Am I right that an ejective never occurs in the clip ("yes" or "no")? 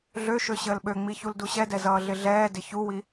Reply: yes